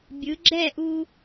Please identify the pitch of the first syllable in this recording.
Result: rising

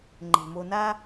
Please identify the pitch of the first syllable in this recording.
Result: low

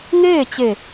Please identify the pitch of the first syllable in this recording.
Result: falling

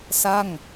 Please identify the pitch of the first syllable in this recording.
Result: falling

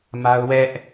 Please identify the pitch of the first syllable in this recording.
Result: high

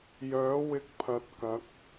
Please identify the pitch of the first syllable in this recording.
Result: rising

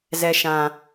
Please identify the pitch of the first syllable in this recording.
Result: low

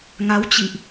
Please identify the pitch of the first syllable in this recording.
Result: rising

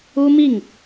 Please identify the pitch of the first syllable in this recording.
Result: high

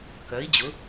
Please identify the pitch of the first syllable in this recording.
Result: rising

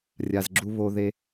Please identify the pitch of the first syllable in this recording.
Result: low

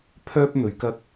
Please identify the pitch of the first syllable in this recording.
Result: high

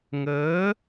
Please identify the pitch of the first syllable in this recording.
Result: rising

